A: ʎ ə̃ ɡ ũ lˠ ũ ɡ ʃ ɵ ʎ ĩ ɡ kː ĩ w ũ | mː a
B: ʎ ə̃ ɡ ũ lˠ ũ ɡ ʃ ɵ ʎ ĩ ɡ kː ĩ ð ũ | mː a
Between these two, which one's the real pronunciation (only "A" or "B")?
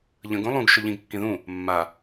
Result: B